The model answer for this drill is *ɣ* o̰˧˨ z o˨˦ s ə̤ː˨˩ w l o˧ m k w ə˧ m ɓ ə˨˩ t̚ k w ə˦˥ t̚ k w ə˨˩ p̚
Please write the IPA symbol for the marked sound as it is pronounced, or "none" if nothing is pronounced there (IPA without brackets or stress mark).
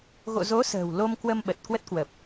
ɣ